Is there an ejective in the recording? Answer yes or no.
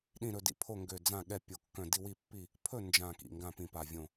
no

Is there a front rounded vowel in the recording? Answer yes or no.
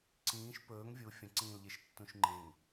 no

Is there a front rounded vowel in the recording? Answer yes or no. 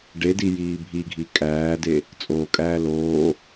no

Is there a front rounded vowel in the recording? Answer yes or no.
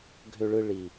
yes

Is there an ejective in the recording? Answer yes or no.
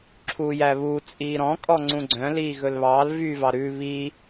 yes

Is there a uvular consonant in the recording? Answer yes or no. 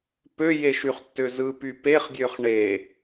yes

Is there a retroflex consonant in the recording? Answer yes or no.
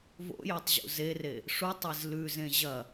yes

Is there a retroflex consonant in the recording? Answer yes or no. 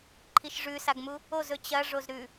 yes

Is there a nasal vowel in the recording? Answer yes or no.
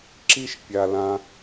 yes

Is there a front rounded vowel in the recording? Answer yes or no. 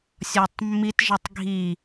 no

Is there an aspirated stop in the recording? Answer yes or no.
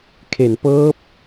yes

